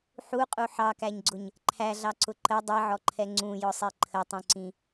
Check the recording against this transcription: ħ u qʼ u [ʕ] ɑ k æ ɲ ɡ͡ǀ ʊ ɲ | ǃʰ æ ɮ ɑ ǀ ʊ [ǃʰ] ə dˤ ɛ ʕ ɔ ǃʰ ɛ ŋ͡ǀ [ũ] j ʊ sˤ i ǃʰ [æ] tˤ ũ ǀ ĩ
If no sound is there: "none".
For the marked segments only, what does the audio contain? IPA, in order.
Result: ħ, ǃ, ũ, ə

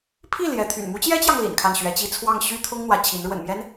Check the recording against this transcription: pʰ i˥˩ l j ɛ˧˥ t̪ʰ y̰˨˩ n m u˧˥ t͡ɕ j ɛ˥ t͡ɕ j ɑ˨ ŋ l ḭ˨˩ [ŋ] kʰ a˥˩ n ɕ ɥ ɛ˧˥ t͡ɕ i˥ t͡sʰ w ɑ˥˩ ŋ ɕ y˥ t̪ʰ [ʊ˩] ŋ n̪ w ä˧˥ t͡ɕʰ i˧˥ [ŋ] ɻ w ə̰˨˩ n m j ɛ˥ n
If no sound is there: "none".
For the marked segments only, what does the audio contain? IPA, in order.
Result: n, ʊ˥, n

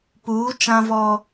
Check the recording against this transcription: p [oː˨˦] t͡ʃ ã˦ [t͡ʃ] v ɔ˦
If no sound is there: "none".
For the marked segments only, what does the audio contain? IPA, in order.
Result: uː˨˦, none

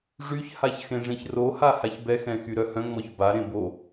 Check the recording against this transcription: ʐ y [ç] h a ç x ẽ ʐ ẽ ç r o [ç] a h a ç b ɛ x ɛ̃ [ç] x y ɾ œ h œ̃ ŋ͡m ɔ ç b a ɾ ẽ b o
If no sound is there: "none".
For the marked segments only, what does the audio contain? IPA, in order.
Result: ç, h, none

